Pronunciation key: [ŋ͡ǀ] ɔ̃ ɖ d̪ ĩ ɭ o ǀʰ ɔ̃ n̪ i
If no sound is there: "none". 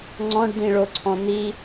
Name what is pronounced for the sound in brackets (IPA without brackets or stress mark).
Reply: ŋ͡ǀ